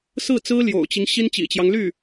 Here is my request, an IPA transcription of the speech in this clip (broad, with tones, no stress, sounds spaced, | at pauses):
s ɹ̩˥˩ t͡s ɹ̩˥ l j o̰˨˩ ʊ̯ t͡ɕ i˦ ŋ ɕ i˥ n t͡ɕ ḭ˨˩ t͡ɕ j ɑ˦ ŋ l y˥˩